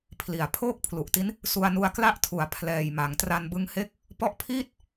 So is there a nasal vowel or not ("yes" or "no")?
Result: no